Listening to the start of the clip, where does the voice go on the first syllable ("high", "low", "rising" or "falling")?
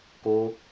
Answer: high